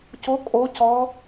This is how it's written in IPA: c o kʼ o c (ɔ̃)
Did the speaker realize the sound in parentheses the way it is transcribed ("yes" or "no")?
no